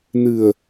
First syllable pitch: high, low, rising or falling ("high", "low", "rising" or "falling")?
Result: low